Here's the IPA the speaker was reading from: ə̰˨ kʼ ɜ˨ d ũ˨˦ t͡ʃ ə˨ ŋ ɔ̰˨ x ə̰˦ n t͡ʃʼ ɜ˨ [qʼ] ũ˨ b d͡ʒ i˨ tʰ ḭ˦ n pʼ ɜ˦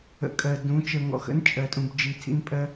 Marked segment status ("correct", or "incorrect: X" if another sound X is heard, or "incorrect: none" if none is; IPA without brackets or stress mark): incorrect: tʼ